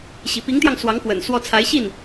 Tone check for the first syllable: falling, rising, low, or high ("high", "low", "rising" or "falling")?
low